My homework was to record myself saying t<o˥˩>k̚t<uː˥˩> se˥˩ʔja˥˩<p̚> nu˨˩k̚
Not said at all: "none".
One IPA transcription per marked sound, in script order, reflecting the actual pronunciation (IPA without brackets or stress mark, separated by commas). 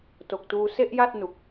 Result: o˨˩, uː˧, t̚